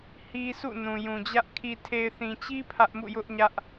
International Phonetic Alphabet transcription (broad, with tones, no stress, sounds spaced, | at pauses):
h i˦ s ṵ˦˨ n ũ˨ j ũ˨ d͡ʑ ä˦ ʔ kʰ i˨ tʰ e˨ ɪ̯ θ ĩ˨ t͡ɕ i˦ pʰ ä˦ ʔ m ṵ˦˨ j ʊ˦ ʔ ɲ ä˦ ʔ